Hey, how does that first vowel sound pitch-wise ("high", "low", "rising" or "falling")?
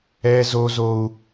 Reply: high